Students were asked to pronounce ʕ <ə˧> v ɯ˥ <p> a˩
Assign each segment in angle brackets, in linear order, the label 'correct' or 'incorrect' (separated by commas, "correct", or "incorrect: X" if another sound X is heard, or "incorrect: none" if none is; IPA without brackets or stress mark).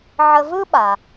correct, incorrect: ɓ